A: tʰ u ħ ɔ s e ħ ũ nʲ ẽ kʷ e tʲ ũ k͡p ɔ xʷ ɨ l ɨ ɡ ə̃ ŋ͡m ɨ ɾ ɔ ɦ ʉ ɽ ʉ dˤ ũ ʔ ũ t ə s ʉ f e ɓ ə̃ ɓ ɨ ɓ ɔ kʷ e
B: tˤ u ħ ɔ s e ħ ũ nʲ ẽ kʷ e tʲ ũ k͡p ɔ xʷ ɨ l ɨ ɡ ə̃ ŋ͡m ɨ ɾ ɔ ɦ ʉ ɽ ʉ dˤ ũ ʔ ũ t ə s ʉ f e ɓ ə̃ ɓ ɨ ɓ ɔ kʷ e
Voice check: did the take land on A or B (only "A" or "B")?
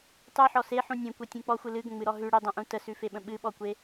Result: B